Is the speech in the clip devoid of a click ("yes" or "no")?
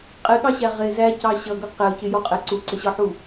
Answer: no